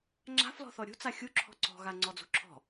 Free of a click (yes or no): no